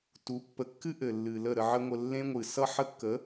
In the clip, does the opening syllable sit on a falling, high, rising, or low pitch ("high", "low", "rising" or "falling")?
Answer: rising